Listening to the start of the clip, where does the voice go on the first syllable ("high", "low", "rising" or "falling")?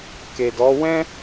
low